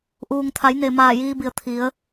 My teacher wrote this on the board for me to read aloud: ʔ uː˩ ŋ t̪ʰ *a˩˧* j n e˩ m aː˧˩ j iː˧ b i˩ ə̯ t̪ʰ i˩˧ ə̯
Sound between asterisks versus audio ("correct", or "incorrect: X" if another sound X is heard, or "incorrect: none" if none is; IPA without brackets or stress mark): correct